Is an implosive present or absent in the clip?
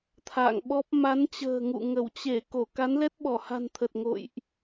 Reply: present